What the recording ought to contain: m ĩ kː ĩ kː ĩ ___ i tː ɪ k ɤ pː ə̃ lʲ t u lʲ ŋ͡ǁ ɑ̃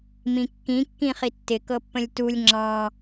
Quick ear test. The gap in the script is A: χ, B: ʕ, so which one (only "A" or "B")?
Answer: A